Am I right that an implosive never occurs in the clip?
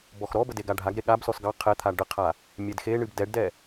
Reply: no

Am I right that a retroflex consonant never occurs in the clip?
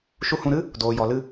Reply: yes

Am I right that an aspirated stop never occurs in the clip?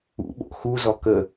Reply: yes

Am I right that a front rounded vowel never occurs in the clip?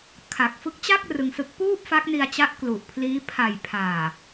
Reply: yes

